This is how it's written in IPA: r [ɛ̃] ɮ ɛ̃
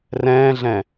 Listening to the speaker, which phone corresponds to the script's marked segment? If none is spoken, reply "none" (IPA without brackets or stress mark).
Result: ɛ̃ː